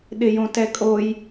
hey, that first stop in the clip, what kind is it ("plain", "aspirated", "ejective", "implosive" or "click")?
implosive